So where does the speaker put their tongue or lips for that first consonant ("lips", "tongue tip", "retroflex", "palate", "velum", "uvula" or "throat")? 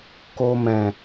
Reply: velum